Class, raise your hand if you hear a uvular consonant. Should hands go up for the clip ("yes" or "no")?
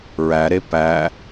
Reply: no